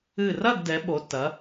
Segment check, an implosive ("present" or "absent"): present